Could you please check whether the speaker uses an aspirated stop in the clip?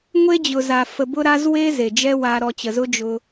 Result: no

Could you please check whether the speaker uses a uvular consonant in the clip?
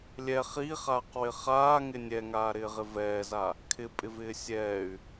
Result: yes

